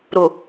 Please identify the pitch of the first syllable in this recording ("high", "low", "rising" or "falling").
low